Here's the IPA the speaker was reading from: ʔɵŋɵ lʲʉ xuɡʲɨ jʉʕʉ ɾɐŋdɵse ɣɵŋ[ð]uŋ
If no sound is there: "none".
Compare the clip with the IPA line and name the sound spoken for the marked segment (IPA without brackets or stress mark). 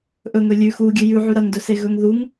ð